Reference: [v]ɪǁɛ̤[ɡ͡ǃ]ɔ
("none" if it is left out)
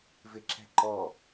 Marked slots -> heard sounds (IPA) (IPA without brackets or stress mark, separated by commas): v, ǃ